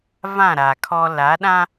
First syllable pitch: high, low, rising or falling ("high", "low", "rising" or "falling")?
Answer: falling